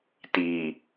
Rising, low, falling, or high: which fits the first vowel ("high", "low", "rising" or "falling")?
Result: low